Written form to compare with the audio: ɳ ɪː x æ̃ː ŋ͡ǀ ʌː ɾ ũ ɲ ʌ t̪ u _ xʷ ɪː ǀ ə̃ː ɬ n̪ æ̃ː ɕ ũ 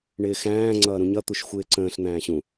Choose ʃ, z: ʃ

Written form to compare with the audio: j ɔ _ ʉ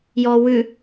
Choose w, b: w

